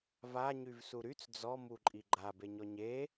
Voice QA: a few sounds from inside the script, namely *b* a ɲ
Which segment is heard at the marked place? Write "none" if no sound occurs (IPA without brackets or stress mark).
v